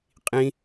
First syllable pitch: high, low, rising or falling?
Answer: high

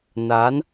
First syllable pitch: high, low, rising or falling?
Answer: rising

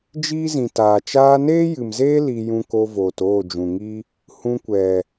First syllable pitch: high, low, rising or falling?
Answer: high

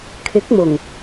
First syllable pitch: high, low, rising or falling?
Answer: rising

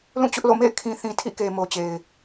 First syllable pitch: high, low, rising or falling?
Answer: falling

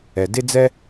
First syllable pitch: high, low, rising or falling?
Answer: low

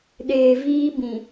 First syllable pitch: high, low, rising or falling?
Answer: low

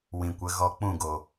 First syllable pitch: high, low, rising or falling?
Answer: low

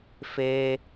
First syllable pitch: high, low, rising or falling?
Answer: low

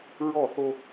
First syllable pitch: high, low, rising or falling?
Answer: falling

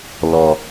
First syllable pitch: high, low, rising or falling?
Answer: low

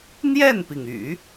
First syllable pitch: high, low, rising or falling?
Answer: falling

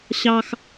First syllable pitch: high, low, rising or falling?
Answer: high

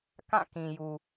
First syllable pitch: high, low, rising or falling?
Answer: falling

